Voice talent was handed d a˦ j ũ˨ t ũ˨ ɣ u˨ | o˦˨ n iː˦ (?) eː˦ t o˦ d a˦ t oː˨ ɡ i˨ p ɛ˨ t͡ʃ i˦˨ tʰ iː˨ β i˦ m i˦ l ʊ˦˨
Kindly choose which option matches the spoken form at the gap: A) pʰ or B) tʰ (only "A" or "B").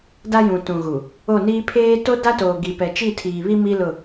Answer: A